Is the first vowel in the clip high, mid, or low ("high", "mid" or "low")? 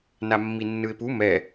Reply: low